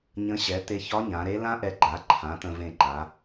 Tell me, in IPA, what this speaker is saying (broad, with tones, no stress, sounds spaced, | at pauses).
ɲ ə̃˧˥ ɕ ɛ˩˥ t̪ e˧ ç ɒ˧˥ ɲ ã˩˧ ɾ e˧˥ l ã˥ ʔ ɛ˧ ɡ͡ǃ a˩˥ ǃʰ ã˩˥ t̪ ə̃˧ v ẽ˧ ǃ a˩˧